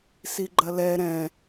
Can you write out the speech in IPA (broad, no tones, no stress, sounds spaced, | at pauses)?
s i ɡ͡ǃ ɐ l ɛ ɾ ɛ̃